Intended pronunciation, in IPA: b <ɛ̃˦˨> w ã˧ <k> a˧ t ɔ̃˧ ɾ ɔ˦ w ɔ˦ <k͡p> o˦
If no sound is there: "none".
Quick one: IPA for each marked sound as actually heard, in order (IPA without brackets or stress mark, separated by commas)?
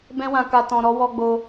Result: ɛ̃˦, k, ɡ͡b